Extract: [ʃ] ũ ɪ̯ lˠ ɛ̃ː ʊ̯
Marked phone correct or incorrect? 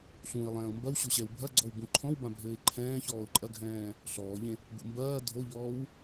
incorrect